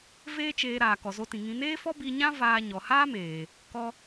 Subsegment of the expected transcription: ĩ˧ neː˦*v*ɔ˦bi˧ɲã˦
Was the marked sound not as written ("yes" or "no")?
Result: yes